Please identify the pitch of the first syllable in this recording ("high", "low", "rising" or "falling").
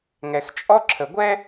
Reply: low